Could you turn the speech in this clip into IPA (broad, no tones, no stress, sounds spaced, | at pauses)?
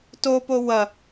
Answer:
t o p o w ɐ